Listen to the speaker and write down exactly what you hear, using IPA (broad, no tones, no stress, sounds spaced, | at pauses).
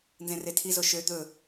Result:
n z ẽ r e tʰ i z o ʃ ø d̪ ɵ